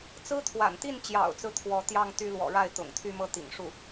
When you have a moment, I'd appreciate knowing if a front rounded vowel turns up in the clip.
yes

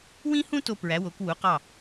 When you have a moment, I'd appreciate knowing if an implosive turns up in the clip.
no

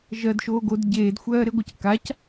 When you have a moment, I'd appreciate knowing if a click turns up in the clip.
no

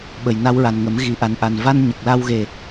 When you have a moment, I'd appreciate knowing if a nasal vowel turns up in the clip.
no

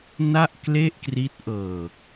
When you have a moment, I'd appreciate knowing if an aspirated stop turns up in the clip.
no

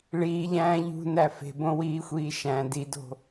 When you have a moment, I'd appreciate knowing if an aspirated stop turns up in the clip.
no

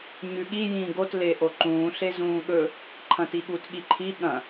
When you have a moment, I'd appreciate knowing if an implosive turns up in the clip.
yes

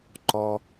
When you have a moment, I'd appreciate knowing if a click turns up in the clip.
yes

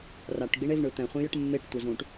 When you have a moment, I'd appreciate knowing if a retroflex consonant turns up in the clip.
yes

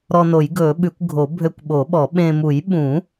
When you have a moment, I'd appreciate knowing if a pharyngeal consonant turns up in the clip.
no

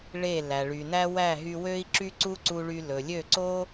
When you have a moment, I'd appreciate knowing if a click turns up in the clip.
yes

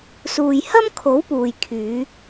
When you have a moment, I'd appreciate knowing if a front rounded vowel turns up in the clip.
yes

